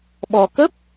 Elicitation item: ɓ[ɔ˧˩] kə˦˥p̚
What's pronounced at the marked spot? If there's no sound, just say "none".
ɔ˧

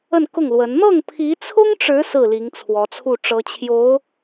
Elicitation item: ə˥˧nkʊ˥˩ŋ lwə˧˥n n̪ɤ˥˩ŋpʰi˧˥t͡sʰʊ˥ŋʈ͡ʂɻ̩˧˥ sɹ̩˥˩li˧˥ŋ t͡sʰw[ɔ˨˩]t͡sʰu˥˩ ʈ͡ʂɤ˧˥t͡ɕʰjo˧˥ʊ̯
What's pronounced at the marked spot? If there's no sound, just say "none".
ɔ˧˥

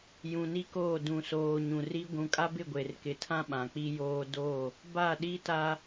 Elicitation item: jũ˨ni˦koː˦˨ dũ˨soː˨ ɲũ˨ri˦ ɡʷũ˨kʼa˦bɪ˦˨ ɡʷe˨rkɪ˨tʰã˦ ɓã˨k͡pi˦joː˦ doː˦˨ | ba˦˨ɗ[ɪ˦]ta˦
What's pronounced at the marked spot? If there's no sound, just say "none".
i˦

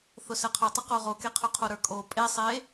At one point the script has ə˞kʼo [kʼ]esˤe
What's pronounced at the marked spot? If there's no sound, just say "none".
pʼ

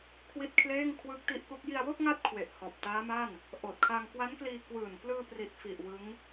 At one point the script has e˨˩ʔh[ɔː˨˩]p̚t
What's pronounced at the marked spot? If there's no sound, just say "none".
ɔː˨˩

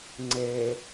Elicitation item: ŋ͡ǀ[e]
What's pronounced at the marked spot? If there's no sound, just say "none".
e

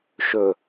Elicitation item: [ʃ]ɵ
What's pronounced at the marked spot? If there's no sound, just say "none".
ʃ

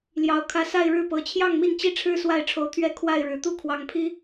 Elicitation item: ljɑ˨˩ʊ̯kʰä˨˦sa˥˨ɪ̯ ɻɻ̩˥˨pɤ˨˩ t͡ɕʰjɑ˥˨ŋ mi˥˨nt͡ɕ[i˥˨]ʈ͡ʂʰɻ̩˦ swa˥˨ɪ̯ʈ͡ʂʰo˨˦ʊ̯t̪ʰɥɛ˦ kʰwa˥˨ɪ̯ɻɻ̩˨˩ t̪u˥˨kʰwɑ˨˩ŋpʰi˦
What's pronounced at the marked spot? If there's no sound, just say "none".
i˥˨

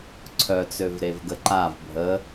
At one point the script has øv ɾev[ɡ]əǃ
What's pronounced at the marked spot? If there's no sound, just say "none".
ɡ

